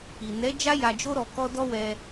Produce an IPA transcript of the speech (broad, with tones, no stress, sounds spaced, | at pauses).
i˨ n ɛ˨˦ d͡ʒ a˦ j a˧ d͡ʒ o˦ ɾ ɔ˧ k ɔ˦ d ɔ˦ w ɛ˧